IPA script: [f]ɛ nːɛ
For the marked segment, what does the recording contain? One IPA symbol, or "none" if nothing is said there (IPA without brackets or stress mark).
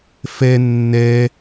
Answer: f